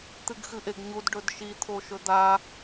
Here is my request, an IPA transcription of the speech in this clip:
t̪ɨɡxɨʔeɡɲud ɖɵdʃi t̪ʰoʃɵd̪a

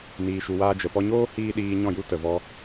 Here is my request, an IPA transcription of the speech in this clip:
niː˧ʃu˧waː˦ d͡ʒə˨pɔ˧ɲoː˦ hiː˦ ɗiː˧ɲɔ̃˦˨ju˦ tə˨vɔ˧

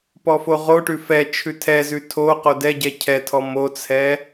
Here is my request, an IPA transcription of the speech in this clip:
pɔfoʁoʈʉ fɛ t͡ʃʰʉtʰɛzʉ tʰo qodɛɟɛ cʰɛtʰɔ mot͡sʰɛ

